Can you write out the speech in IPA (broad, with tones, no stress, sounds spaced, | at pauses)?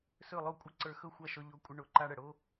s ɵ˥˩ lˠ o˥˩ kʷʼ ə˥ ǀ ə˞˧ x ɵ˥˩ xʷ ɑ˥˩ ʃ ɔ˧ ʎ o˧ kʷʼ ə˧ ɳ o˩˥ ǃ a˧ ɽ ə˩ ɽ o˥